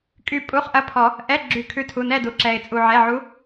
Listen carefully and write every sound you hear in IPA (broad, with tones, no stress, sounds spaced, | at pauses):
kʼ y˦˨ pʼ u˧˥˧ χ ʔ ɐ˧˥˧ pʰ ɔ˨˩˦ | ʔ ɛ˧˥˧ ɡ͡ǁ y˨˩˦ kʰ ʉ˨˥ tʰ u˩˧˩ n ɛ˦˨ d u˩ ǁ ɛ˩ ɪ̯ t͡sʼ u˩ ʕ ɛ˩˧˩ ʕ u˨˥